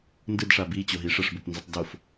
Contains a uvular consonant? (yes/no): no